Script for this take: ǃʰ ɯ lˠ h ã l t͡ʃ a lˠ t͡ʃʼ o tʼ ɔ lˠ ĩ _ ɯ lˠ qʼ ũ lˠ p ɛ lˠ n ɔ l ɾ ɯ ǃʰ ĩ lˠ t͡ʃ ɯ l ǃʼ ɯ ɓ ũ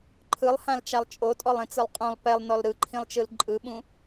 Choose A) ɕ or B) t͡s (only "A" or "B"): B